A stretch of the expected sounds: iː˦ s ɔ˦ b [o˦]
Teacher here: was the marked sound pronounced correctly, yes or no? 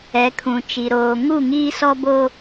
yes